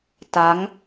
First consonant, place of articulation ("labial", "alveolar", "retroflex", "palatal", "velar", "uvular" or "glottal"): alveolar